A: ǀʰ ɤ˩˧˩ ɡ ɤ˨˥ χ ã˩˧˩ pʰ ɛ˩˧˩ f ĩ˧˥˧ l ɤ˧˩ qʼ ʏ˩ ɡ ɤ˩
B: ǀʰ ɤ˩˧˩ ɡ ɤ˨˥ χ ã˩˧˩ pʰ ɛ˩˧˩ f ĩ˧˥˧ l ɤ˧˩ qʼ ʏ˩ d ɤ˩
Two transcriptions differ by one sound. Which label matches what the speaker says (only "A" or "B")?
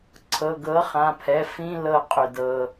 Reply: B